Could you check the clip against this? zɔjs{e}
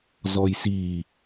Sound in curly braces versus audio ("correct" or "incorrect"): incorrect